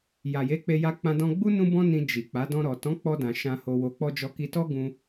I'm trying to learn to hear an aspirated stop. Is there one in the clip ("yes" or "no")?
no